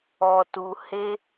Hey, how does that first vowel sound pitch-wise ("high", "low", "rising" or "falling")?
low